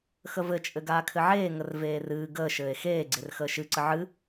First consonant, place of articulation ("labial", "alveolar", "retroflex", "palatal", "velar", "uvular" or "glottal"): velar